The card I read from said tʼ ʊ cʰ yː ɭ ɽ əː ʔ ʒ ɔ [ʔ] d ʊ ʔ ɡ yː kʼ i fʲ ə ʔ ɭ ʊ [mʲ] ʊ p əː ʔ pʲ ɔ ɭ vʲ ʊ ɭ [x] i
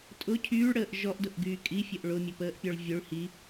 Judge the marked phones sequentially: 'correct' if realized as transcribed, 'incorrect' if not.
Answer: correct, correct, incorrect: h

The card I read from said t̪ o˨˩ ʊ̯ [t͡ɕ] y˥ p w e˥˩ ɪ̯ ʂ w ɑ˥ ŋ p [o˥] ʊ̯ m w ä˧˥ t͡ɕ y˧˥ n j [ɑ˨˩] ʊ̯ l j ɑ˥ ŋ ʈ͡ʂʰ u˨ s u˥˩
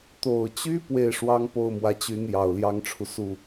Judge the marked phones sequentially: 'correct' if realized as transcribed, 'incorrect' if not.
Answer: correct, incorrect: o˥˩, correct

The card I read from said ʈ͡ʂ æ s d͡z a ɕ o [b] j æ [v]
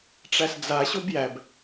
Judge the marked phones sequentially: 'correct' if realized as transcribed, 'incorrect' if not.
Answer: correct, incorrect: b

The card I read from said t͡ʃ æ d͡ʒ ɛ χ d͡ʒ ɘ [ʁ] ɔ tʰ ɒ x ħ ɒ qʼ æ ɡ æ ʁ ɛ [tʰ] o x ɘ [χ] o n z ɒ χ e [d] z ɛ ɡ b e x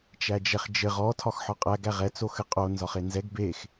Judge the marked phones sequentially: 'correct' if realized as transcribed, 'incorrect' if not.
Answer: correct, incorrect: t͡s, incorrect: qʼ, incorrect: n

